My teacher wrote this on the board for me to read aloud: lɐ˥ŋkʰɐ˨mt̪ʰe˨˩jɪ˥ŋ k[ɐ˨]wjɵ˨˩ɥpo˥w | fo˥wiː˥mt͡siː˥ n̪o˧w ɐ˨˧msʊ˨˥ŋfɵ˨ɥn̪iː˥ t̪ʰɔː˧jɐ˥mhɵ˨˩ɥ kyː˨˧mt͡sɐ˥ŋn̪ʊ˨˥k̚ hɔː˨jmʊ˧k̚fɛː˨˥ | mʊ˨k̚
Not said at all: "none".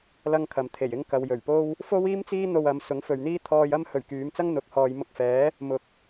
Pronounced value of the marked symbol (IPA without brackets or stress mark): ɐ˨